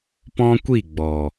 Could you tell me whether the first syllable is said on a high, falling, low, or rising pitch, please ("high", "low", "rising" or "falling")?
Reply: high